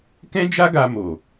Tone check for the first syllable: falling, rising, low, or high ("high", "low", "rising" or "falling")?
high